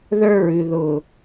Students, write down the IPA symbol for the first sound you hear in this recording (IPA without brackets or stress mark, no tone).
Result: ð